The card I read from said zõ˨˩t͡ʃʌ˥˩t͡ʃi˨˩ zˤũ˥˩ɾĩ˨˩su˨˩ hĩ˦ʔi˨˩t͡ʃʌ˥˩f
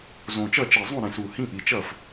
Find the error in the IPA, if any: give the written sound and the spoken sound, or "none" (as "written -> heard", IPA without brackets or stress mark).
none